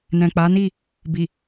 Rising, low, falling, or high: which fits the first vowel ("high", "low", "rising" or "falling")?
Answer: low